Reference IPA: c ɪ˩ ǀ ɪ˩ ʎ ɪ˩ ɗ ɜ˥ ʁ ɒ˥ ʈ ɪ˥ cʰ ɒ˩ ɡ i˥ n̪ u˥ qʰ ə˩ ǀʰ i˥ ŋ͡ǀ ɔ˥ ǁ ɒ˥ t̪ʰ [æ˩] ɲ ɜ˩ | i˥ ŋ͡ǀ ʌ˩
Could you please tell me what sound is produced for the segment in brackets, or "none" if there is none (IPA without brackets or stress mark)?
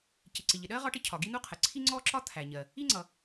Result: æ˩